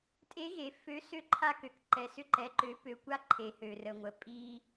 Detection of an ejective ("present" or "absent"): present